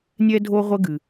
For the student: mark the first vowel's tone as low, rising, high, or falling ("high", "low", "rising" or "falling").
high